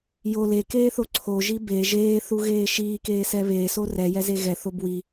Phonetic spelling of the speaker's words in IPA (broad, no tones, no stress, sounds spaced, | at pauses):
j o l e k eː θ o ǀʰ o ʒ i b e ʒ eː θ u ɣ eː ʃ iː k eː s ɛ β eː s o r ɛ j ɛ z e ɣ ɛ θ o b w i